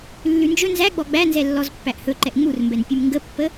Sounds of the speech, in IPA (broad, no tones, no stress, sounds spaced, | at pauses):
lː ʉ n d͡ʒ ɵ n z æ ɡ͡b ɔ ɡ͡b æ n z ɛ lː ɔ z pː æ ʔ h ɵ ǃ ɛ ʔ ŋ͡m u r m b ɛ n pʲ ʉ m ŋ ɡ ə pː ə